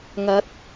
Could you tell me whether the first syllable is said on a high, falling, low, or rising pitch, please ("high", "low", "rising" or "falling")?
rising